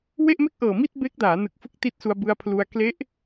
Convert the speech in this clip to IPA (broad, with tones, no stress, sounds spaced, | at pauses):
w e˥˩ ʔ m e˥˩ k̚ ʔ ɤː˨˩ m i˥˩ t̚ b e˦˥ k̚ d aː˩˦ n ɯ˨˩ k̚ f ɯ˦˥ k̚ t i˦˥ t̚ s u˧ a̯ b ɯ˧ a̯ pʰ l u˧ a̯ k l e˦˥ ʔ